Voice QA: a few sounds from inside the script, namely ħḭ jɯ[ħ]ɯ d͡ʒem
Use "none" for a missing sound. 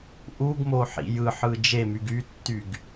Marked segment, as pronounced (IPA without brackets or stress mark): ħ